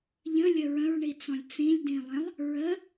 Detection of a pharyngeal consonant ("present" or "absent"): absent